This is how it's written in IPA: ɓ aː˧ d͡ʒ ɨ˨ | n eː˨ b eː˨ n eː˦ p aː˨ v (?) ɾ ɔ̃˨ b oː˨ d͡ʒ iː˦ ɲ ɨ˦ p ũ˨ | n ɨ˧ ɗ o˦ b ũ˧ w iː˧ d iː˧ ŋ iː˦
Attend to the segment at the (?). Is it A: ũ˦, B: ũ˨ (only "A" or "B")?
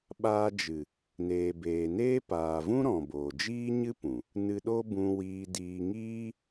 A